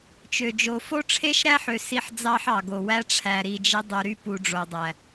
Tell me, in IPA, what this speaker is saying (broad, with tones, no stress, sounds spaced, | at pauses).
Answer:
t͡ʃ ø˨ d͡ʒ o˨ f o˦ ʈ͡ʂʰ e˦ ʃ ɾ æ˦ ħ ø˨ s i˦ ħ d͡z ɑ˦ ħ ɑ˨ ɡ o˨ w æ˦ ʈ͡ʂʰ æ˨ ɾ i˨ d͡ʒ i˦ dˤ y˨ ɾ y˦ p u˨ ɖ͡ʐ o˨ dˤ æ˨